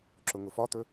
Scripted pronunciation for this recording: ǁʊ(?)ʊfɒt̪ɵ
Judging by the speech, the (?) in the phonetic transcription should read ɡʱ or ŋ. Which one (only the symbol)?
ŋ